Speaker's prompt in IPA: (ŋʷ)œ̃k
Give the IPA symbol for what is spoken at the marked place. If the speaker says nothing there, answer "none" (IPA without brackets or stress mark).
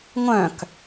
ŋʷ